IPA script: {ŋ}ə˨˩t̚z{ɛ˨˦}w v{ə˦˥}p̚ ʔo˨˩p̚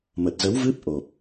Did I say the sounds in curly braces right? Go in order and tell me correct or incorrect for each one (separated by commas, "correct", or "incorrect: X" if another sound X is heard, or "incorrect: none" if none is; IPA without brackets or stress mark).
incorrect: m, incorrect: ə˨˦, incorrect: ɨ˦˥